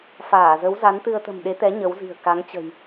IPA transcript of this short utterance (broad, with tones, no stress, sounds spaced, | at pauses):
f aː˧˩ z ə˨˦ w z a˨˦ n t̪ ɨ˧ ə̯ t̪ ə̤˨˩ m ɗ e˨˦ t̪ ɛ˨˦ ɲ ə˨˦ w z i̤˨˩ ə̯ k a˨˦ ŋ t͡ɕ ə̤˨˩ j